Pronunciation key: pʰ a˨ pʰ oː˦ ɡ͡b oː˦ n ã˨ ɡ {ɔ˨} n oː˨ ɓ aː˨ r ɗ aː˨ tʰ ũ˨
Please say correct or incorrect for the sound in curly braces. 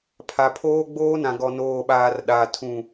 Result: correct